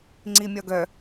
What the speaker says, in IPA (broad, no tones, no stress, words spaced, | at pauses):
ŋ͡ǀimʲɒɡœ